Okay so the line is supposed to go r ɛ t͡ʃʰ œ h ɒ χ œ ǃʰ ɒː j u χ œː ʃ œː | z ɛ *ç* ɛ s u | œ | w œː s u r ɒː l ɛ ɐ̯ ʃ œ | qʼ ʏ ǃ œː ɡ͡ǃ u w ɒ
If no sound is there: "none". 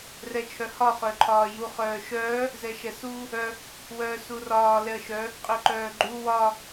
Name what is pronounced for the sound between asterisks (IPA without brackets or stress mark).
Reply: ʃ